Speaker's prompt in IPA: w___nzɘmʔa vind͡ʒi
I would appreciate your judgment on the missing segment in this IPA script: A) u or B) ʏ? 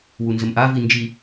A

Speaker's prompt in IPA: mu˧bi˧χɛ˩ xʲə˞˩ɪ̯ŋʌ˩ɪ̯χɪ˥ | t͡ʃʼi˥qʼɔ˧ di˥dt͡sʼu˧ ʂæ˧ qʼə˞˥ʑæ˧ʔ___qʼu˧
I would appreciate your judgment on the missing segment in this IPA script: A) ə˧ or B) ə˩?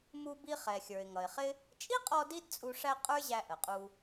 B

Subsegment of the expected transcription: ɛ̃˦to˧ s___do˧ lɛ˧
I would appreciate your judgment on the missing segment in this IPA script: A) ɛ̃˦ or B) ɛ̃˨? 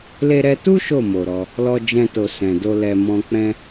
B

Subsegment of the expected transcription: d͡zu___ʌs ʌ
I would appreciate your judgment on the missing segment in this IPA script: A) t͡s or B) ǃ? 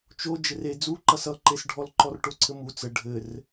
B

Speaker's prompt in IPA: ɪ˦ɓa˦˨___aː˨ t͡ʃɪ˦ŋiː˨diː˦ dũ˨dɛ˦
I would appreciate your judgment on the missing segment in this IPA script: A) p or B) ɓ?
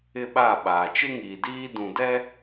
B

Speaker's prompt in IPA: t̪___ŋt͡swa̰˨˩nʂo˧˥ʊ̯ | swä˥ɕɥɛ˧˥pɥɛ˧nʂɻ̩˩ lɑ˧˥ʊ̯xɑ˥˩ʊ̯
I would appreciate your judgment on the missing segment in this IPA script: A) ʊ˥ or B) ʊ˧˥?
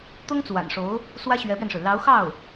A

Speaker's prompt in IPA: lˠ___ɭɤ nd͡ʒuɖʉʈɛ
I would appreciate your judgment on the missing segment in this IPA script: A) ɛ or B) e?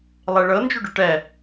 B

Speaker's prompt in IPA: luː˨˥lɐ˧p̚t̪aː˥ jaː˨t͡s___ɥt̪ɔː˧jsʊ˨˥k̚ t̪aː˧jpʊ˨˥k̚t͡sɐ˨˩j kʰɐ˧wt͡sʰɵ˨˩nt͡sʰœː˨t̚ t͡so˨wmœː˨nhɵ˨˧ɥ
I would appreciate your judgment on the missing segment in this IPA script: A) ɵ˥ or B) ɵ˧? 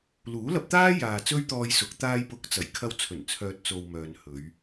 A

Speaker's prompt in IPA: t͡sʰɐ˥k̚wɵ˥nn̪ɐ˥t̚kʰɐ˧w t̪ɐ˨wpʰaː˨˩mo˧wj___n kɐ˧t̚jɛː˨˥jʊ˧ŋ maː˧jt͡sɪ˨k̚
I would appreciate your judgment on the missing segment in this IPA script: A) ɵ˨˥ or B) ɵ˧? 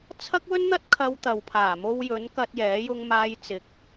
A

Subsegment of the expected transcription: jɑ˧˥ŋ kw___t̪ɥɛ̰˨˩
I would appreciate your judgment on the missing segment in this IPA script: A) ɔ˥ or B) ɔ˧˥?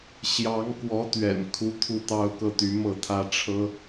B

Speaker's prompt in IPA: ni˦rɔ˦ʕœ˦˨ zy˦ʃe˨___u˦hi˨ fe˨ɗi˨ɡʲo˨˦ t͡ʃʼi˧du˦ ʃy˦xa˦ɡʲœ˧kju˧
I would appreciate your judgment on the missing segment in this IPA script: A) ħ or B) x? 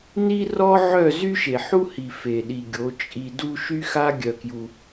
A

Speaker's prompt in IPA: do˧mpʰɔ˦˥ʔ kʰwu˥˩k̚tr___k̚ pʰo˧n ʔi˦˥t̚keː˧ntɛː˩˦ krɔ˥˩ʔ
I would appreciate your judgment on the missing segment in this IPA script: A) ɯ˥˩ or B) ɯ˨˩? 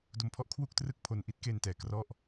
A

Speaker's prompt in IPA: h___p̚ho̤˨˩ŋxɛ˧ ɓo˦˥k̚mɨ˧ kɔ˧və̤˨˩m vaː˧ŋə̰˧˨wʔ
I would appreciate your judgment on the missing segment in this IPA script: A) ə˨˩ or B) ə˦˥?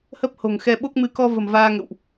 B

